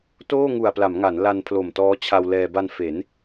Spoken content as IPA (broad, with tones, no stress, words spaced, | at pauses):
toː˥˩ŋu˨˩a̯pla˩˦m ŋa˩˦nla˧npʰlo˨˩m tɔː˦˥t͡ɕʰa˧wlɛː˧ ba˧nfe˩˦n